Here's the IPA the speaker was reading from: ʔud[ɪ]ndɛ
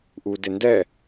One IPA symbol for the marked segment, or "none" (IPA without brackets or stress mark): ɪ